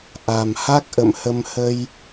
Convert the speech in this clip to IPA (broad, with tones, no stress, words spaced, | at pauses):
ʔa˨˩m ha˦˥k̚ ʔə̰˧˨mhə˧m hə˧j